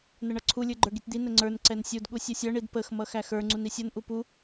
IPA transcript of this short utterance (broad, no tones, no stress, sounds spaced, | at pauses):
n ə ɳ ʌ ǀʰ u lʲ ə˞ ɡ͡ǃ ə˞ ɡ i tʲ d̪ i n ə ŋ͡ǀ ə˞ n ǀ ɛ n sʲ u d ɠ u sʲ ʌ sʲ ʌ ɳ i d p ə x m ʌ x æ x ə˞ ŋ͡ǀ u n i sʲ ʌ n ʔ u p u